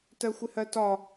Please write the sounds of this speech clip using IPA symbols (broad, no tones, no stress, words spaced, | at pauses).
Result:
tɜxʷɪhɜtɒ